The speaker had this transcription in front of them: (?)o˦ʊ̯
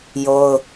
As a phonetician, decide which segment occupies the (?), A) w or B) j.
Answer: B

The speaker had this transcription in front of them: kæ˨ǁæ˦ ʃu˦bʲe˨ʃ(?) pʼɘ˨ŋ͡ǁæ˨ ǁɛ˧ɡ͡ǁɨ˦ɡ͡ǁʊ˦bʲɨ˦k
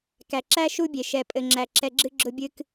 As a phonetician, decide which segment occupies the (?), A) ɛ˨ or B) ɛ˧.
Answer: A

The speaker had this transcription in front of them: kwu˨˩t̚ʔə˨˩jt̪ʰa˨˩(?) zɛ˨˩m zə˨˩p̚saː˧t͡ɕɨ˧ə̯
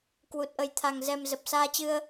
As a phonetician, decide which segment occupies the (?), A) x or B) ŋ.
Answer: B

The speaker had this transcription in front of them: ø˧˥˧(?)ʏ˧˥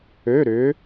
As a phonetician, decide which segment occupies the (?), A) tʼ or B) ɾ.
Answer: B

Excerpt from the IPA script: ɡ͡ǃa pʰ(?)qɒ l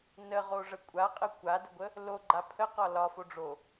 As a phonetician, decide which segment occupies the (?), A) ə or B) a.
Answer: A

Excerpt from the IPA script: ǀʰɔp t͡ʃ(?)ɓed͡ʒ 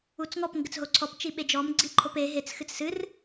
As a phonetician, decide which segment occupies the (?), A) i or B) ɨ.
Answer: A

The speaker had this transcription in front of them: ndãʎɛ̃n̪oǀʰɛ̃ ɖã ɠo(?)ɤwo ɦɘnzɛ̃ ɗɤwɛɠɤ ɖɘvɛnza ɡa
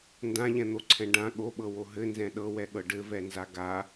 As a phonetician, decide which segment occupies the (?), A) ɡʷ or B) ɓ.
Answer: B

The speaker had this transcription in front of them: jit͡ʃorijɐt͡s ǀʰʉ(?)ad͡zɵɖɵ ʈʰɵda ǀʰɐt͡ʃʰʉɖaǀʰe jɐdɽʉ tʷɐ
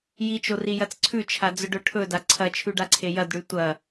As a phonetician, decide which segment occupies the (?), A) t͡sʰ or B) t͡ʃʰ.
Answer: B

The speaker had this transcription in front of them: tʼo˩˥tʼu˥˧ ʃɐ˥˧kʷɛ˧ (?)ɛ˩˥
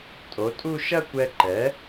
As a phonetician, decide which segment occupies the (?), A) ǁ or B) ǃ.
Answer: B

